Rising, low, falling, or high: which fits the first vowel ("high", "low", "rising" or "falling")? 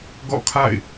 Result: falling